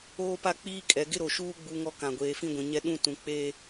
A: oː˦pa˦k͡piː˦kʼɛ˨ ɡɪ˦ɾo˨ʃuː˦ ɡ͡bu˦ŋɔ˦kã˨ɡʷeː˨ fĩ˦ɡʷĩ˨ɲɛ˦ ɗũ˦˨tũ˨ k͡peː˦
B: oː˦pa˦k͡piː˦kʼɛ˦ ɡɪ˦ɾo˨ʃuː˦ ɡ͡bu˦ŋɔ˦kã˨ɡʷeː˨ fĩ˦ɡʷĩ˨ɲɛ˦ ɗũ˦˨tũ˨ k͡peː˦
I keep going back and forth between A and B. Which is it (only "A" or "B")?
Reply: A